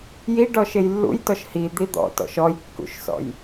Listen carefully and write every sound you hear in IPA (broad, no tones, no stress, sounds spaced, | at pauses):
j i ɖ ɔ ʃ e j lː ṵ j t ɔ ʃ h i d̪ i d̪ ɔ̰ t ɔ̰ ʃ ɔ j kː ṵ ʃ s ɔ̰ j